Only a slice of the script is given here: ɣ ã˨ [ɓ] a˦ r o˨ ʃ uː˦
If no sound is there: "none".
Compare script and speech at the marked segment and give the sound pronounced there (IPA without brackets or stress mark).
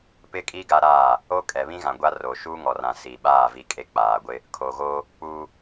ɡʷ